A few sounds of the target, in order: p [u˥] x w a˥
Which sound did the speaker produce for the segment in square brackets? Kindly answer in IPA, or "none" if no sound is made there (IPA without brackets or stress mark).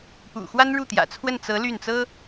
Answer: ṵ˨˩